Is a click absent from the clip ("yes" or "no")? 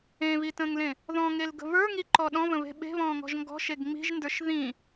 no